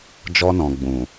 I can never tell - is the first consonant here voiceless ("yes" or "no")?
no